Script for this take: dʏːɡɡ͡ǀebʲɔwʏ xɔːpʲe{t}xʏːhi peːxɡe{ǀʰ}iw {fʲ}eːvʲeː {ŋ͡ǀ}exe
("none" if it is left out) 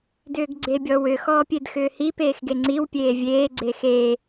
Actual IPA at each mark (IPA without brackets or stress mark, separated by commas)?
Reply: d, ŋ͡ǀ, pʲ, ɡ͡ǀ